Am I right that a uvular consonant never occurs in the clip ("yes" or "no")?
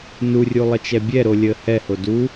yes